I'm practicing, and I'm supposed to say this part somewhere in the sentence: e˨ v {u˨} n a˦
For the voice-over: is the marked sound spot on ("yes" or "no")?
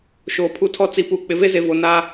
no